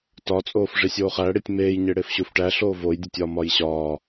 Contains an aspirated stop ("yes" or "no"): no